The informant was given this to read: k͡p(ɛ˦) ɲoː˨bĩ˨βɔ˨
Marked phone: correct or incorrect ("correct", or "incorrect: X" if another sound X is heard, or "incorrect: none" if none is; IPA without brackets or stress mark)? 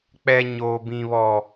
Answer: incorrect: ɛ˨